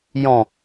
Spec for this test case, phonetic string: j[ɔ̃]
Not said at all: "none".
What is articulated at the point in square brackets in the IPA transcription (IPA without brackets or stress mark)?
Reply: ɔ̃